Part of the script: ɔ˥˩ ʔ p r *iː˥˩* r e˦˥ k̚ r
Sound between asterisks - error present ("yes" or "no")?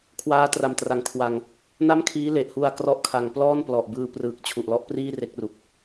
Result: no